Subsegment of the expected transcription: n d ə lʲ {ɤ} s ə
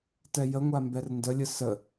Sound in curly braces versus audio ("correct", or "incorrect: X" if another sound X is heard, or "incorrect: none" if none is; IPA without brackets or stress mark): incorrect: ɯ